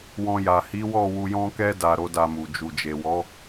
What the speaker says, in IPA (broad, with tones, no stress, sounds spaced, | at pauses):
w ɔ̃˧ j a˨ h i˨˦ w ɔ˦˨ w u˧ j ɔ̃˦ k ɛ˦ d a˧ ɾ o˦ d a˧ m u˨ d͡ʒ u˨ d͡ʒ e˨ w ɔ˨˦